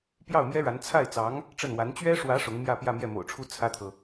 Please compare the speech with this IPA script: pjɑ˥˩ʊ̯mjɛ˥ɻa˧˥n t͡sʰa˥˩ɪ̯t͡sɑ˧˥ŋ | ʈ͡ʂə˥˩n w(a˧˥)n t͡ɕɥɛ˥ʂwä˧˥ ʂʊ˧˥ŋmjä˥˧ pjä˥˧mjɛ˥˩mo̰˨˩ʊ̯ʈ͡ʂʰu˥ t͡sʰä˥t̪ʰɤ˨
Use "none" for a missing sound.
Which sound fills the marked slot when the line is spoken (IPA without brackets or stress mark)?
a˧˥